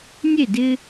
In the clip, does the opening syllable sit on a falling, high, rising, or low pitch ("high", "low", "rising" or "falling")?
falling